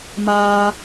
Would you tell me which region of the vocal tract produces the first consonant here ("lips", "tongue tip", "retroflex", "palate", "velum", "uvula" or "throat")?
lips